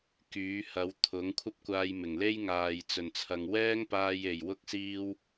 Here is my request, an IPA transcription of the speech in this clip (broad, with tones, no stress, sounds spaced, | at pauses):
k yː˨˥ h ɐ˨˥ w t̪ʰ ʊ˨˥ ŋ kʷʰ ɐ˥ p̚ kʷ aː˧ j m ɪ˨˩ ŋ l e˥ j ŋ aː˨ j t͡s ɵ˨˩ n t͡sʰ ɐ˨ ŋ w ɛː˥ ŋ p aː˧ j e˨˩ j w ʊ˥ k̚ s iː˥ w